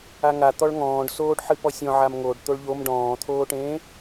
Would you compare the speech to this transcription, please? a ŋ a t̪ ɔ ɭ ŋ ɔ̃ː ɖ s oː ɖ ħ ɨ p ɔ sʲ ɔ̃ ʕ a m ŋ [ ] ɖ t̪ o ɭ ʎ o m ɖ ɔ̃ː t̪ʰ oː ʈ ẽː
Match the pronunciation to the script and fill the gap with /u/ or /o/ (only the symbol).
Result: o